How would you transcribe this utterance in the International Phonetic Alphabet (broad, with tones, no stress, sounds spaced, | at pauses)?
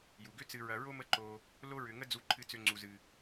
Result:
j u˩ ɡ ʏ˦ t͡s ɨ˨ ɹ ɐ˨ ɹ o˥ m ə˦ ǃ o˨ | l o˦ ɹ ʏ˨ ŋ ə˥ d͡z u˨ ǃʰ ɨ˨ t͡s ʏ˨ ŋ͡ǀ u˩ z ɨ˩